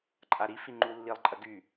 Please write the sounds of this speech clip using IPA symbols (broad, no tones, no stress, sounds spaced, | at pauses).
ǃʼ a ɾ i f i ŋ͡ǃ u lː i lˠ ǃʼ ɐ ɡ y